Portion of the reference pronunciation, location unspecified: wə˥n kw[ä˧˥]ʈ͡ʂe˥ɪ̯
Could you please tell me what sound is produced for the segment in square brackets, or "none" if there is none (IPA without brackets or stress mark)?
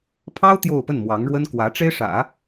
ä˧˥